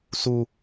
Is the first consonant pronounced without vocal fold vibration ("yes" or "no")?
yes